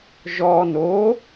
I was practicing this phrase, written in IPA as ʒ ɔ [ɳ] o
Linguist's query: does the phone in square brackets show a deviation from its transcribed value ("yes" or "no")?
yes